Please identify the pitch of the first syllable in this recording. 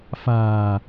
low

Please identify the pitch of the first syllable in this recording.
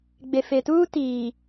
low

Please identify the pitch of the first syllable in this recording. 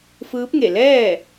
rising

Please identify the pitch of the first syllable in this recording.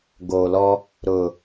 low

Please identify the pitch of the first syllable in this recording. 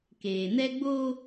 low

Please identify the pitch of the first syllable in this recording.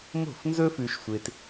falling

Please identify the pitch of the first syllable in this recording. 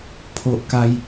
high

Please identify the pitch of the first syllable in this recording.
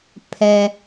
low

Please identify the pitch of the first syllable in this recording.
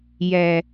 low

